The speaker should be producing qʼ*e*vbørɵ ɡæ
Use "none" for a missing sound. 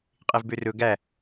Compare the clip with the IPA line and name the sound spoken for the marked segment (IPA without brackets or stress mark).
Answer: e